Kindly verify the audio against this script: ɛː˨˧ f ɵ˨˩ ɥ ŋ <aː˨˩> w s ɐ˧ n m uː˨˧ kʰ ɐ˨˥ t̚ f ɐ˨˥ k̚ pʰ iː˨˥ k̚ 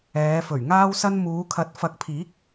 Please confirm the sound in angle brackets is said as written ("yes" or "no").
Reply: no